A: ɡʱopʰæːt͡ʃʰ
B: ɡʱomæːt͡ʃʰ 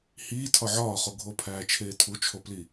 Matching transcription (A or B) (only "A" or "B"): A